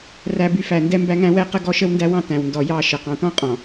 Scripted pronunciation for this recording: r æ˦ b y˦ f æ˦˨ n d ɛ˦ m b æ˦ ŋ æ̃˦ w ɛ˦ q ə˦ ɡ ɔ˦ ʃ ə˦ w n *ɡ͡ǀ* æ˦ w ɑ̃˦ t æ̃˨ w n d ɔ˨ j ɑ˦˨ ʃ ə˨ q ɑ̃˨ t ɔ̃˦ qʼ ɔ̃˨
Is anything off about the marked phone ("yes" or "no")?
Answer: yes